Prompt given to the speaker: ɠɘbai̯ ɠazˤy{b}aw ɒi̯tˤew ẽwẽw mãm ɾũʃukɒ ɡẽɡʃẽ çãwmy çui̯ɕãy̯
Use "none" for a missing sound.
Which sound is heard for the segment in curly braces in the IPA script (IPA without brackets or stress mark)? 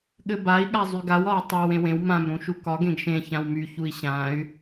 ɡ